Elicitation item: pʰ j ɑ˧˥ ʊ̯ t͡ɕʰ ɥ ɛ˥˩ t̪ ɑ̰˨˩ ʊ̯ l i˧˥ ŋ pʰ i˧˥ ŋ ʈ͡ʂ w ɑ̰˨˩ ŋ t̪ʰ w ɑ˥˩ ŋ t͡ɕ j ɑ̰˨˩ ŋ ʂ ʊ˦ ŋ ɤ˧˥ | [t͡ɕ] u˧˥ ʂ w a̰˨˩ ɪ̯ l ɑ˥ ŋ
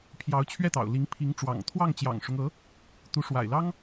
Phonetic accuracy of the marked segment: incorrect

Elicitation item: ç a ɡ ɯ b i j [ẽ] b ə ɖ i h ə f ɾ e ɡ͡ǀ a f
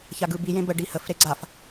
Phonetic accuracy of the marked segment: correct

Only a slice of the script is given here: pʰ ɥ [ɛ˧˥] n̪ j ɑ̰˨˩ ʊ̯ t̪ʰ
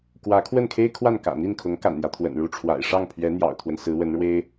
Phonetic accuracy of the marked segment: correct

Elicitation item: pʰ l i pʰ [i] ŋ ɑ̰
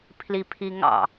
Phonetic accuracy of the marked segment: correct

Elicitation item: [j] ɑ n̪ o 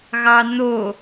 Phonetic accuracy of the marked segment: incorrect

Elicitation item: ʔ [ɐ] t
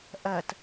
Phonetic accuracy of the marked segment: correct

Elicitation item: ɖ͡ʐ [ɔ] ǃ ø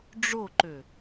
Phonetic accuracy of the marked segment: incorrect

